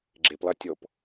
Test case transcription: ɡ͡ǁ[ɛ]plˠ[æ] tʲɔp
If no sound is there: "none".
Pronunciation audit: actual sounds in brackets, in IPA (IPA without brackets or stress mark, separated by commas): e, æ